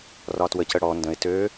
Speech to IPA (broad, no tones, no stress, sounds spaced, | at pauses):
r ɒ t w ə c ə ɽ ɔ n d ə̃ ɪ̯ t ø